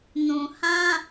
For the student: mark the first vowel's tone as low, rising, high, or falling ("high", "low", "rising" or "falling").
low